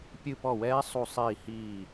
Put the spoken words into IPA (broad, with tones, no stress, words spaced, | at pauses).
pʲɨ˦˨pɔ˦˨wɛː˦˥ sˤu˦˨sˤiː˦˨hiː˦˨